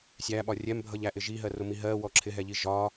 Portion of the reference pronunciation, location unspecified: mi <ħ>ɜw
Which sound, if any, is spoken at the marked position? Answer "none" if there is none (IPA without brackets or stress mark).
ɦ